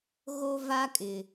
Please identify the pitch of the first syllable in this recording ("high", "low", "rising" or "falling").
high